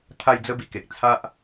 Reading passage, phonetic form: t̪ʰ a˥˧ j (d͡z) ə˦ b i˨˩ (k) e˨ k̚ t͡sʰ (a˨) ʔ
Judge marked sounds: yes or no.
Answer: yes, yes, no

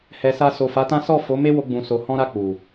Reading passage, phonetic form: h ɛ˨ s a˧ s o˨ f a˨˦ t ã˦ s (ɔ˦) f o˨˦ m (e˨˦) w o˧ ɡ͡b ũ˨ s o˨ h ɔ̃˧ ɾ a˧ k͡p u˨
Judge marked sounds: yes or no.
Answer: no, no

